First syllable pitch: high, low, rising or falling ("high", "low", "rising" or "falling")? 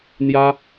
high